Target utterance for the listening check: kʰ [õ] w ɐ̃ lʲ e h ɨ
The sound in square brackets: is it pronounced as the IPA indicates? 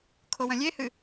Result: no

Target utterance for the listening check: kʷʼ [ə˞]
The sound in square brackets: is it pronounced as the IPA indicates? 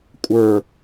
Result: yes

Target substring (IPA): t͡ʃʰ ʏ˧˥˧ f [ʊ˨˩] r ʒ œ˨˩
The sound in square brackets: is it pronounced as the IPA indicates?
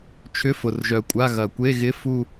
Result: yes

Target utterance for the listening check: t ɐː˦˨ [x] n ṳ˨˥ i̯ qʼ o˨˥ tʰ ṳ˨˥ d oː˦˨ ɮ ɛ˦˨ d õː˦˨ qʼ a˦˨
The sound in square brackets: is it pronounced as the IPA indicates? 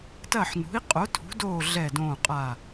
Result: no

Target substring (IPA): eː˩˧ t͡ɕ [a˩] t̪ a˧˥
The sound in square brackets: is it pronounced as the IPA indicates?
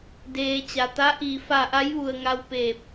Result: yes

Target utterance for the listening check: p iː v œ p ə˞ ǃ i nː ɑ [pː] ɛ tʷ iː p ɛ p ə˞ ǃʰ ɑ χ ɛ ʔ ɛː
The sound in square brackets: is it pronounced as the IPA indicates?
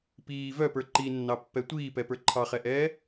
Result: yes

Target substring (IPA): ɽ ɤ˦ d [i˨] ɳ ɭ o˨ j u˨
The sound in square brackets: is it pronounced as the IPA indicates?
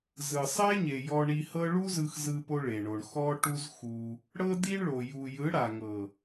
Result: no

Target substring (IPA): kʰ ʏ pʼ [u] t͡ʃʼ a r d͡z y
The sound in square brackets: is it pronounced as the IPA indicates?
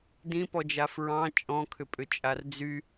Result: no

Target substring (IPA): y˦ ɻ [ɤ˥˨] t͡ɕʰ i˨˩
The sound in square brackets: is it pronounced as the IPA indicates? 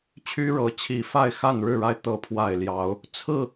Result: no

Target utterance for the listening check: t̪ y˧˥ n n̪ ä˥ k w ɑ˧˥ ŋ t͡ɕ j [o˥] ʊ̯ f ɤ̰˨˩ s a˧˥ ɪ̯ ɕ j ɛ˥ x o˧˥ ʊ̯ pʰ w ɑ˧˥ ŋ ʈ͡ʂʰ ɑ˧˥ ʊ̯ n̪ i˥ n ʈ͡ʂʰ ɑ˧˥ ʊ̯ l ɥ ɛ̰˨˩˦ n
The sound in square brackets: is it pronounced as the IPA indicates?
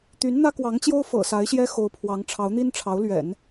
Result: yes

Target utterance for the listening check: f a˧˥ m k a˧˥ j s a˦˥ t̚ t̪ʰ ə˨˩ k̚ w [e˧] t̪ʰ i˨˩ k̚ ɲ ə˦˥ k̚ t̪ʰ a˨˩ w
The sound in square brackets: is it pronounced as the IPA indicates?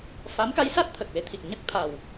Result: yes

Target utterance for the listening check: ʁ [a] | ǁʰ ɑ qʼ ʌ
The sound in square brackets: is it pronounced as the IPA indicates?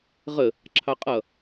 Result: no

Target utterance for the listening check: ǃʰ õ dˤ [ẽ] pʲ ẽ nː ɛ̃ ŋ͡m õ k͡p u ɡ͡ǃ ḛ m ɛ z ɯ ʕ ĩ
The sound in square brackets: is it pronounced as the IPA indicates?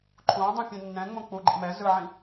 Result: no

